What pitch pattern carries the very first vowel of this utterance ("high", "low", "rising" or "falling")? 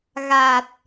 low